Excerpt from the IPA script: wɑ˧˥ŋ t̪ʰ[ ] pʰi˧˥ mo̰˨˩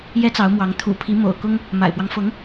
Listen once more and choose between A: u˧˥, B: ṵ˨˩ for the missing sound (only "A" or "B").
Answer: B